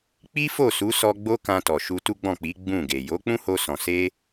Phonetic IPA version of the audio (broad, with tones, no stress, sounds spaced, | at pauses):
k͡p i˦ f o˦˨ s u˨˦ s ɔ˦ ɡ͡b o˦ k ã˧ t ɔ˨ ʃ u˧ t u˦ ɡ͡b ɔ̃˦˨ k͡p i˨˦ ɡ͡b ũ˦˨ ɡ e˨ j o˨˦ k͡p ũ˦ h o˧ s ɔ̃˨ s e˧